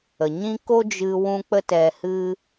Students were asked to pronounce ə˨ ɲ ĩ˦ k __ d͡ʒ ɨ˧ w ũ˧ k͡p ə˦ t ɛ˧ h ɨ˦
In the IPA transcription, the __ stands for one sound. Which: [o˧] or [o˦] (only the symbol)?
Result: o˦